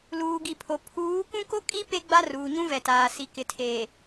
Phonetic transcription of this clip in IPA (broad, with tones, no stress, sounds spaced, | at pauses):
l uː˨ ɡ i˨ pʰ o˨ pʰ uː˨˦ k ũ˦ k o˦ kʼ i˦ p e˦ ɡ͡b a˦ r uː˨ ɲ ũ˦ v ɛ˨ t aː˨ s i˨ k ɪ˨ tʰ eː˨